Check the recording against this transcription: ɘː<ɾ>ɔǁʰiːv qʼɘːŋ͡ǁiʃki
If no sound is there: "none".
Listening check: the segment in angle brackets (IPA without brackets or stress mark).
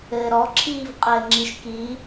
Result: ɾ